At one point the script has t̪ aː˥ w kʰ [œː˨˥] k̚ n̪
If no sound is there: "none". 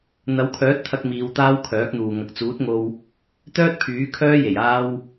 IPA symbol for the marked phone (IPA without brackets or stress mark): œː˨˥